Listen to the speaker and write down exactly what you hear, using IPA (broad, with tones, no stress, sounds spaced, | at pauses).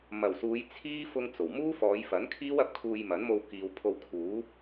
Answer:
m ɐ˨˩ w s uː˨˧ j t͡sʰ iː˥ f ʊ˥ ŋ t͡s o˨˩ w m uː˥ f ɔː˨˧ j f ɐ˨˥ n kʰ iː˥ w ɐ˧ p̚ kʰ uː˧ j m ɐ˨˥ n m o˧ w k iː˨ w pʰ o˧ w kʰ uː˨˥